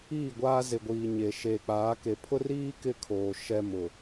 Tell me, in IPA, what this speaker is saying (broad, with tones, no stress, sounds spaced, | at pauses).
iː˦˨ ɡʷ aː˦ z ɪ˨ ɡʷ iː˨ ɲ e˨ ʃ eː˨ k͡p aː˨˦ k e˨˦ pʰ ʊ˦ r iː˦ k ɪ˦ kʰ oː˨ ʃ ɛ˦ m ʊ˨